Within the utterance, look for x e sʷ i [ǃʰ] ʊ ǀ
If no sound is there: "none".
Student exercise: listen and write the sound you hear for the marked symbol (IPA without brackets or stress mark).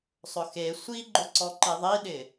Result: ɡ͡ǃ